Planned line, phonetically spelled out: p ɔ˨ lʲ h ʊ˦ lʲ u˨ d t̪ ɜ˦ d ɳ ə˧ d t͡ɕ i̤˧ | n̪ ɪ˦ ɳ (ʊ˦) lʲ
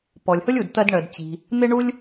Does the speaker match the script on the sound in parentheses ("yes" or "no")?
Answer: no